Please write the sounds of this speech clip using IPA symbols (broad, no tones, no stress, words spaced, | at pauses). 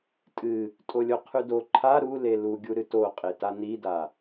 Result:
tʼɨ | tʼolʲoqʰʉdo ǃʰa ɾu leluɡʲu ɾɨtoqʼeta nida